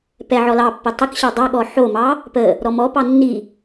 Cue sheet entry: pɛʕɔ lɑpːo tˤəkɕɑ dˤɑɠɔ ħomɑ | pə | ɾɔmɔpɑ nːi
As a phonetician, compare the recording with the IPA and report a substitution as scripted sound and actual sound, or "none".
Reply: none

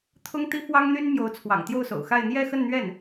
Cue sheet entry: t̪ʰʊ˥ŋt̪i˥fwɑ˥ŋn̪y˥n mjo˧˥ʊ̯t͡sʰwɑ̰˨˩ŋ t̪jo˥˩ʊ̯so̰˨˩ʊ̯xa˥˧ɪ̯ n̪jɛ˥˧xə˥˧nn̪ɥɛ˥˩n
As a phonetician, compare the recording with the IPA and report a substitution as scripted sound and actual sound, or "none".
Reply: none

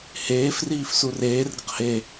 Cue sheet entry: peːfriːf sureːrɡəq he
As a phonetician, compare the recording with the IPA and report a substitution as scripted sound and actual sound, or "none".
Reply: p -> h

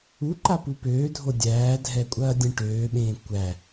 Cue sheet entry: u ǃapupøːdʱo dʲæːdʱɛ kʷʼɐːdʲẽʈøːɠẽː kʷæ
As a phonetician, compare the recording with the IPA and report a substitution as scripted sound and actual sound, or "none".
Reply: ɠ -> ɓ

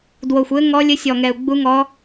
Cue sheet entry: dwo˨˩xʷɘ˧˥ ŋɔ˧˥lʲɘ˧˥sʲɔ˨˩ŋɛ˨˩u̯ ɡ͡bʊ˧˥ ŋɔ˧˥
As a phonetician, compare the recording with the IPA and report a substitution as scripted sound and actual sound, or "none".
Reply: ʊ˧˥ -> u˧˥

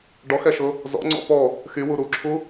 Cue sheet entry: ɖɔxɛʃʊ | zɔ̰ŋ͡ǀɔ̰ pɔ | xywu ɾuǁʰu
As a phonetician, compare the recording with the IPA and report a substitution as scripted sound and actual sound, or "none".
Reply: none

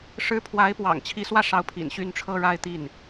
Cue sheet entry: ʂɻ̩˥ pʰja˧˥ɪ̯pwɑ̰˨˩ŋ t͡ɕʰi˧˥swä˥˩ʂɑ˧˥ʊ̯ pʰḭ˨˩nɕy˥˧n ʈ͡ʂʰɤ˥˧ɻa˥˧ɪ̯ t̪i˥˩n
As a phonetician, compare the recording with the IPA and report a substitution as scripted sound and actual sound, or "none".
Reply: j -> w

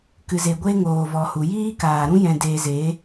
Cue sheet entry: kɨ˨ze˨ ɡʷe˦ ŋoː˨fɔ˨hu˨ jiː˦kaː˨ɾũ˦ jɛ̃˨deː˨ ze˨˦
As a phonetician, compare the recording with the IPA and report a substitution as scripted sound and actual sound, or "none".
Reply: f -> v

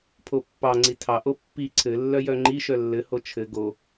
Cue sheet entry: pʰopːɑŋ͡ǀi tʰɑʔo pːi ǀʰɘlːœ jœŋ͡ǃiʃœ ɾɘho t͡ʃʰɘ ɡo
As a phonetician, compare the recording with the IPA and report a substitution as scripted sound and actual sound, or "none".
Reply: ɾ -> lː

